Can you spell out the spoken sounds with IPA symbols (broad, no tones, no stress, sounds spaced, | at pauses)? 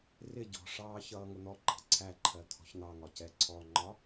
r ɪ ɟ ɔ̤ ʂ ɑː ç ʌː ŋ ʊ n̪ ɔ ǃ ɑ̤ ǀʰ æ ǃʰ ɜ t̪ʰ ɔ̤ ç n̪ ɑ ŋ ɒ c ɛ ǀʰ ɔ ŋ͡ǃ ɒ